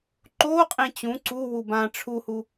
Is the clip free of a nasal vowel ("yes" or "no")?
no